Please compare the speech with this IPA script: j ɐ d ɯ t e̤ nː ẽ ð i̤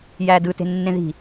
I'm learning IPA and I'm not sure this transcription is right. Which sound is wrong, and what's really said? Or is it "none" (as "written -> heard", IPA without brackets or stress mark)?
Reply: ɐ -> æ